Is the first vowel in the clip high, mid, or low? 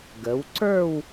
mid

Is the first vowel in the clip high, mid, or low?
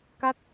low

